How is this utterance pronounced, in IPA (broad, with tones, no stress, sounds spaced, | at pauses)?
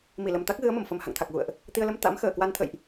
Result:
m i˧˩ l ə˨˩ m t̪ a˦˥ k̚ ɣ ɨ˨˦ ə̯ m ə˧˩ m f ə˨˩ m h a̰˧˨ ŋ t̪ʰ a˨˩ k̚ ɣ ṵ˧˨ ə̯ ʔ | t̪ i˧ ə̯ l ə˧ m t̪ a̰˧˥ m x əː˧˩ k w a˧ n t̪ʰ ə̰˧˨ j ʔ